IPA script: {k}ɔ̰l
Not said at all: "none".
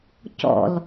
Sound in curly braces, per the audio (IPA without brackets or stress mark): c